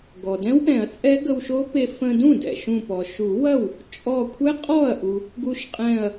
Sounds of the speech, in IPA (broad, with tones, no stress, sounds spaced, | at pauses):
ɡ ɔ˩ d ɛ̃˦˥ w ʔ ɛ̃˨˩˦ ɐ̯ t͡sʼ ɛ˦˥ ɡ ə˧ w ʃ o˦˥ p e˧ f ə̃˧ d ũ˥˩ d ɛ̰˩ ʃ ũ˧˩ p ɔ˩ ʃ u˨˩˦ w ɐ˥˩ w | t͡ʃʼ ɔ˧˩ kʷʰ ɛ˦˥ qʼ ɔ˥˩ ɐ̯ ʔ u˩ | ɡ u˧ ʃ qʼ ɛ̃˧˩ ɐ̯